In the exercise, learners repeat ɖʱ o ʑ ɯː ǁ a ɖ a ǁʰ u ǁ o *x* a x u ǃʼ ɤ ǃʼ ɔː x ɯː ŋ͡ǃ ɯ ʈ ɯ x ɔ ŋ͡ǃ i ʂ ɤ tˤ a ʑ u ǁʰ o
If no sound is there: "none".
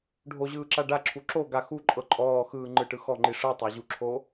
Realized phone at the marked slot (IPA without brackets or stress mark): ɡ